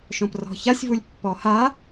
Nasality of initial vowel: nasal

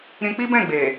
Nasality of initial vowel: nasal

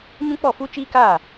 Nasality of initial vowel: nasal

